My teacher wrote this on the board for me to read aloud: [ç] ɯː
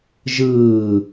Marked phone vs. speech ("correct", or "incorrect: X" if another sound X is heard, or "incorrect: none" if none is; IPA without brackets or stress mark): incorrect: ʒ